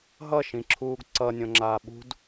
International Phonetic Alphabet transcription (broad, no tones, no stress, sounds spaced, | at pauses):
ɦ ʌ ʃ ĩ ǁʰ uː ɡ ǀ ʌ nʲ õ ŋ͡ǁ aː ɓ ṳ d